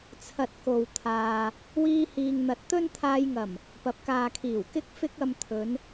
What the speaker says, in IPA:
t͡sʰɐ˧t̚ko˨wt̪ʰaː˨ | wiː˧hiː˨ŋn̪ɐ˨˥t̚t̪ɵ˥n t̪ʰaː˧jŋɐ˨˩m | pɐ˨p̚kaː˨kʰiː˨˩w kɪ˥k̚fɪ˥k̚ ɐ˧mt̪ʰɵ˨˧n

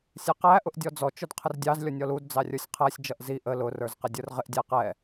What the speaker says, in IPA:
sʲɛqæ ʔʊʔdʲɔd͡zɔ t͡ʃʊdqʰərdʲɑz lʲɔnʲɔlud d͡zɑrʲə˞sʲqʰæsʲ d͡ʒʌʔzi ʔə lʊ rə˞zqɪdʲə˞rʁɪʔ dʲæqɛ

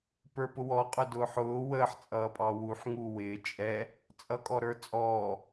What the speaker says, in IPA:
pə˞pʊwɔ qʼʊdʊːħʊː wəːħ t͡sʼʌːpʼɑwuħ ŋuwɪː t͡ʃʼɛ | t͡sʼʌkʼɔɾə˞t͡sʼɔː

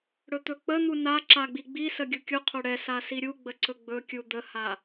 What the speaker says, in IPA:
ɽɵt̪ɵk͡pən̪u na ǁaɡ͡biɡ͡bisə ɡʲukʲuqʰo ɽɛsa siɾʲuɡ͡bə ǀɵɡ͡bɵkʲu d̪əha

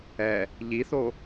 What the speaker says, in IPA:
ɛ | ʎiθo

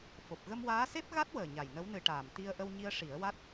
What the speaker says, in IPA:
fo˨˩p̚ɣə˧mwaː˧˥ se˦˥p̚ɣa˦˥t̚wəː˨˩ ɲa˨˩jnə˧˥wnɨ˧ʈaː˨˩m t̪i˧ə̯ ʔə˧wɲi˧ə̯ʂi˨˩˦ə̯wa˦˥t̚

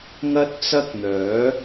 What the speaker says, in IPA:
ŋɐ˥t̚t͡sɐ˥k̚n̪œː˨˥

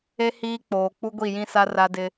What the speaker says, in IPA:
e˦ hiː˦k͡poː˨ k͡pu˦ɡʷi˦˨jĩ˦sa˦ ra˦dɪ˦

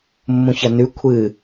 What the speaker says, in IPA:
mːũçɐnʉ kʷʰɨ

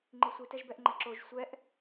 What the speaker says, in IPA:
ŋ͡ǃisʷi tɛʒbɛʔŋ͡ǃɛǁoʒ sʷɛʔ

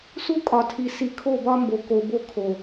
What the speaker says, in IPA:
su˦kʼɒ˨tʰi˨ si˨kʰo˦˨bɒ˦mbo˨ ko˨bo˦ kʰo˨

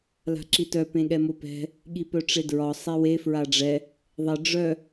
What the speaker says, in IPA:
la̤ǁitœ pẽɠɛmopɛ̤ | ɠipœʈ͡ʂedɹɒ sˤewe fɹaɖ͡ʐɛ | ðˤe ɖ͡ʐœ

